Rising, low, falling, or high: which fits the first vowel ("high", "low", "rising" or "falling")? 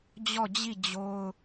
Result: falling